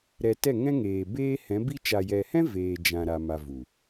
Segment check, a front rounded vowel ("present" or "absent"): absent